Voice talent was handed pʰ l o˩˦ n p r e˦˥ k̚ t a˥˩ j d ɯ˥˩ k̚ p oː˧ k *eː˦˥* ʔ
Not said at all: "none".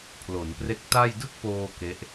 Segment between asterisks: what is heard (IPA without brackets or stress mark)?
e˦˥